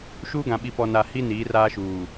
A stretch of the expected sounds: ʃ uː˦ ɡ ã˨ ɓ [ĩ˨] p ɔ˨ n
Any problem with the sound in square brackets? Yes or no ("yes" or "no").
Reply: yes